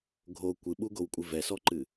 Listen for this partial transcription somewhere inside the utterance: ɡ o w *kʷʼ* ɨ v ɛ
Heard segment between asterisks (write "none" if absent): kʷʼ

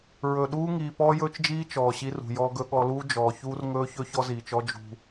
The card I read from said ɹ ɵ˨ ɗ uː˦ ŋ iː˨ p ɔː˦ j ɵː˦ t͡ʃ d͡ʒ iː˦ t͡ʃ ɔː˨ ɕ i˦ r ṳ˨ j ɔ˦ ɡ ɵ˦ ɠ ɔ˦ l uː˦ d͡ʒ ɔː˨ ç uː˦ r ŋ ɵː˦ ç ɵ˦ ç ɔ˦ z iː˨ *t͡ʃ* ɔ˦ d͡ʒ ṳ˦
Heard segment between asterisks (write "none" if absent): t͡ʃ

